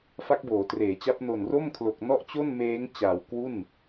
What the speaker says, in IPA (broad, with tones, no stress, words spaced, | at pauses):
fa˦˥k̚boː˩˦treː˩˦t͡ɕa˦˥p̚ no˨˩nro˥˩mkʰlo˨˩k̚ nɔ˥˩ʔt͡ɕo˥˩nmeː˦˥ŋt͡ɕaː˨˩w kwu˥˩n